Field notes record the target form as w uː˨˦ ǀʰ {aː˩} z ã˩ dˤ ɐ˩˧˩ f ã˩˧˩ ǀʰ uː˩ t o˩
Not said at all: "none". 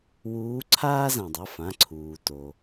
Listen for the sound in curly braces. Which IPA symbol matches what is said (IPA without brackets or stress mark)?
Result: aː˦